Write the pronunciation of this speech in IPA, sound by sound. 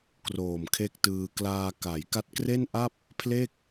k r oː˨˩ m kʰ e˦˥ k̚ t ɯː˧ k l aː˧ k a˩˦ j k a˦˥ t̚ k r e˥˩ n ʔ a˥˩ p̚ | pʰ l e˥˩ k̚

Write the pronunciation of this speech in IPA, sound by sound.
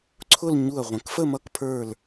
ǀʰ ʊ˥˧ l ɲ u˧˩ ɐ̯ ʁʷ ə̃˩˧ k f ə˥˧ m ʌ˧ k pʰ ə˞˧˩ l

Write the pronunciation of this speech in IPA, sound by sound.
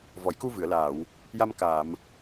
v ɔ˨˩˨ j k u˧ v ɨ˨˩˨ ə̯ l aː˨˩˨ w | j a˧ m k aː˨˩˨ m

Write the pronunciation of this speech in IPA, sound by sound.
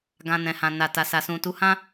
ɡ ã˧ n ɛ̃˨ h ã˨ n a˨ t a˨ s a˨ s ũ˨ t u˨˦ h ã˦

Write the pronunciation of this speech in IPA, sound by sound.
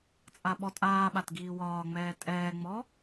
t͡sʼ a ɓ ɔ tʼ aː ɓ a t ɡ iː w ɒː ŋ͡m ɛː tʼ ɛː ŋ͡m ɔ

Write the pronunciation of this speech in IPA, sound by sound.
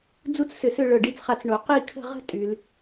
d͡z u˥ t͡s s ʏ˧˩ s ʏ˥˧ ɭ œ˧˩ ɖ i˥˧ t͡s χ a˧ t͡s ɳ o˩˧ q i˥˧ kʰ ə̤˥˧ ʁ ə̤˥ tʼ y˩˧ l

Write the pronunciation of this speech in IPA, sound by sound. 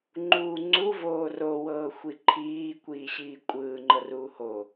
ŋ͡ǃ uː ŋ͡ǀ u v oː r o w ɤː xʷ i ǃʰ iː kʷ iː ɕ iː kʷʼ ɯː ŋ͡ǃ ɤ r uː h o

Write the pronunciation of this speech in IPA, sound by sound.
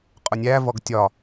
qʼ ʊ nʲ æ v ɔ ɡ tʲ ɒ

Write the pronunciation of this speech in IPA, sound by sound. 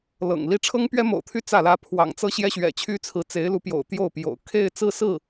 l ɤ̰˨˩ ŋ l i˥ ʈ͡ʂʰ ɤ˥ ŋ p ɥ ɛ˥ m o̰˨˩ ʊ̯ t̪ʰ y˥˧ t͡s ä˥˩ l ä˥ pʰ w ɑ̰˨˩ ŋ t͡s ɤ˥ ɕ j ɛ˥ ɕ ɥ ɛ̰˨˩ t͡ɕʰ y˥ t͡sʰ ɹ̩˧˥ t͡s e˧˥ ɪ̯ l u˧˥ p j o̰˨˩ ʊ̯ t̪ j o˥˩ ʊ̯ p j o̰˨˩ ʊ̯ kʰ e˥˧ ɪ̯ t͡s ɹ̩˥˧ s ɹ̩˥˩

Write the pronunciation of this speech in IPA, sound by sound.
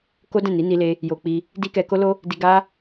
k o˦ d ɛ̃˦˨ n i˨˦ n i˧ l e˧ | j o˧ k͡p i˧ | d i˦ k ɛ˧ k o˦ l o˦ | d i˧ ɡ a˦

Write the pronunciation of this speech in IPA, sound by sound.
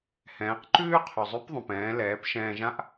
h ɛ̃ː˩˧ q ǃ ʉː˥ qʰ ʉ˩ zˤ ʉ˧˥ p ðˤ ũ˩ p ɛ̃ː˩˧ l ɛː˩˧ p ʃ ɛ̃ː˧ ʒ ã˥ ʔ

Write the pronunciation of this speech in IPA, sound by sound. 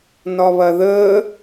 n ɒ β ɐ ð ə

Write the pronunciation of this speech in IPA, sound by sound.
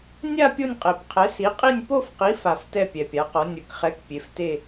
nʲ a˥˧ pʲ o˥˧ nʲ qʼ e˨˩ p qʰ ɛ˨˥ s i˨˥ qʼ i˥˧ nʲ p o˥˧ f q i˨˥ f a˨˩ f t ɛ˥˧ pʲ ɛ˨˩ pʲ a˨˥ q ɔ˨˥ nʲ ɯ˨˩ k χ ɛ˨˥ k pʲ e˨˥ f t e˥˧

